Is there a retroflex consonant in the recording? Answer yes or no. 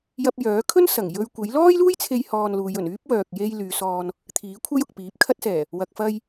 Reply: no